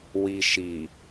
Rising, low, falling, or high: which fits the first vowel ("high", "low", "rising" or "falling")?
low